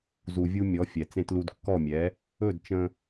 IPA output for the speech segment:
z u˩ vʲ u˧ mʲ ɔ˩˥ fʲ ɛ˩ t͡s ẽ˧ t l u˧ d kː ɔ˥˩ mʲ ɛ˩˥ | ɵ˥˩ d t͡ʃ ə̃˧

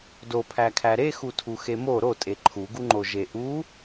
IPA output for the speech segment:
d o pʰ æ kʰ æ ɾ e x u tʰ u x e m o ɾ o tʼ e ǃʰ u ɡ u ŋ͡ǃ o ʒ e ʔ u

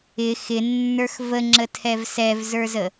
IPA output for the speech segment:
ɪ x ɪ nː ə˞ x v ə ŋ͡ǁ ə tʰ ɛ v s ɛ v z ə˞ z ə

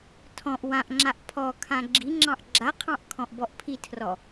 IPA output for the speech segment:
tʰ ɔ̃ ʔ w ã ʔ ŋ͡ǁ a ʔ pʰ ɔ kʰ ã ɡ͡ǁ i ŋ͡ǁ ɑ̃ ʔ ɡ͡ǁ a qʰ ɑ̃ ʔ kʰ ɔ̃ ʔ b ɔ ʔ pʰ i tʰ r ɔ

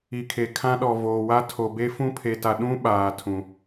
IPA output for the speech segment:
i˨ kʰ e˨ kʰ ã˦ ɗ ɔ˨ v oː˨ w a˦ tʰ o˨ b e˦ f ũ˦ pʰ e˨ t a˨ ɗ ũ˦ ɓ aː˨ tʰ ũ˨

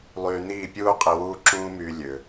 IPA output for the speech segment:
lˠ yː˧ n̪ iː˥˩ pʲ uː˥ qʼ i˧ w uː˥ ǁ ũː˥ m yː˧ lʲ ø˩

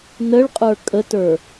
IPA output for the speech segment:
n ə ɭ qʼ ə˞ kʼ ə t ə˞

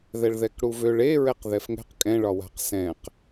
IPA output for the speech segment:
ð ɛ ɭ ð ɛ k ɽ u v ø ɭ e ɹ ɛ q ð ɛ f ŋ ɛ̤ q kʼ ɛ̃ ɭ ɒ w a̤ q s ɛ̃ q

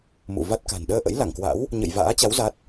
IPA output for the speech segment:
m ṵ˧˨ v a˦˥ t̚ k a̤˨˩ n ɗ əː˧ ʔ ə̰˧˥ j l a˧˩ ŋ k w a̰˧˥ w | ɲ ə̰˧˨ j v a̰ː˧˥ t͡ɕ a˨˦ w z a˦˥ t̚

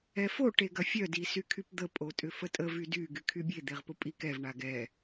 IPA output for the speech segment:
ɛ f o ʈ e ɡ ɐ fʲ œ d i s y kʰ y p d̪ ə pʼ o tʼ ʏ f ə tʼ ə v y d y ɡ y kʰ y bʲ e d̪ e ʁ p ʊ pʼ i k ɛ v ɳ a ɡ ɛ

